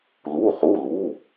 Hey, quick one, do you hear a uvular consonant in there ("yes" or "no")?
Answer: yes